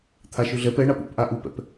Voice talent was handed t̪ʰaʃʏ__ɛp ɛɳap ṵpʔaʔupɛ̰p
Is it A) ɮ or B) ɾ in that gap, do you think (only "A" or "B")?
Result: A